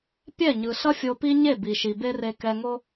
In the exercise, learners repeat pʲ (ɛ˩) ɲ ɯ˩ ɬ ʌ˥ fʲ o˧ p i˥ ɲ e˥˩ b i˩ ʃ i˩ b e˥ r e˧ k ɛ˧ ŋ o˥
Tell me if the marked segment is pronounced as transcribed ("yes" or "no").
no